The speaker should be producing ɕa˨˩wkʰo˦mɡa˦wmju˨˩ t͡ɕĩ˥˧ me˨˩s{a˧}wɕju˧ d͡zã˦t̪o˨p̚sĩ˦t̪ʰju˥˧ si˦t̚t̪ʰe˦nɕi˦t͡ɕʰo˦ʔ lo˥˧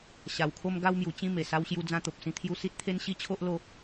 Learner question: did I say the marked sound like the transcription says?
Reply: yes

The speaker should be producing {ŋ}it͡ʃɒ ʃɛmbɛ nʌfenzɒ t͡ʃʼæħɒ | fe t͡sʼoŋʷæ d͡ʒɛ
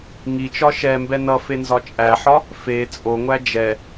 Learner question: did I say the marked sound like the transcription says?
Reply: yes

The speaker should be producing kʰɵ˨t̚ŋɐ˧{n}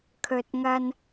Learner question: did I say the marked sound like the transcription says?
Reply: yes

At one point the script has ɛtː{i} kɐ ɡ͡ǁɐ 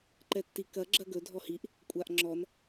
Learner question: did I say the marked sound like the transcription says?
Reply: yes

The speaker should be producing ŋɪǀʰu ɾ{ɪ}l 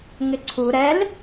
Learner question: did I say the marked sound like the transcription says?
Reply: no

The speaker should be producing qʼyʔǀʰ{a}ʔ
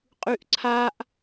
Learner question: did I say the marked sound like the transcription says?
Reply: yes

